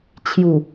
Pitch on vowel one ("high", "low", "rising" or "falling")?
low